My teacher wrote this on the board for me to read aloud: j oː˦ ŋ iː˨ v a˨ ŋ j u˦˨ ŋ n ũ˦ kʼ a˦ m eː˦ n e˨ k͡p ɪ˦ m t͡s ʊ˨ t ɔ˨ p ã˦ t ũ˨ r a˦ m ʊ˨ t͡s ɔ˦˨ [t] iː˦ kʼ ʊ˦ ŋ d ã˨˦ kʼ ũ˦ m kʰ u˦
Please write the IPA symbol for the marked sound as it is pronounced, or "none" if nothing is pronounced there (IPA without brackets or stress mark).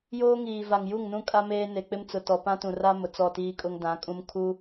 t